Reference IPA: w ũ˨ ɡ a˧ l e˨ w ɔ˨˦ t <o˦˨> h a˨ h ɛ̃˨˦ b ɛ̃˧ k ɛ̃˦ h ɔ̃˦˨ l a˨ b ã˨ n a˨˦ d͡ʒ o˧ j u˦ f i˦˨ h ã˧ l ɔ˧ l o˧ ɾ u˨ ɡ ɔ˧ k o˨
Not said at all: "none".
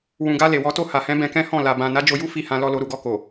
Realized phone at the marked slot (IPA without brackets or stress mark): o˦˨